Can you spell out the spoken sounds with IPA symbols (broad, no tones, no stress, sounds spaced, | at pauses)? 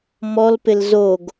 m ɔ l p ɪ l z o ɡ